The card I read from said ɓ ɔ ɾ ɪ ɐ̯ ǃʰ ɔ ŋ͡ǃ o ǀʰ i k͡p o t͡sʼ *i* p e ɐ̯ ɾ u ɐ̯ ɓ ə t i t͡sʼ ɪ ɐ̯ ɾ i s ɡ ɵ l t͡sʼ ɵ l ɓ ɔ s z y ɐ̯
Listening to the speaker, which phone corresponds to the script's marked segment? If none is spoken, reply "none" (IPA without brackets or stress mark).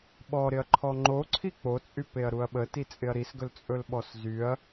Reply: y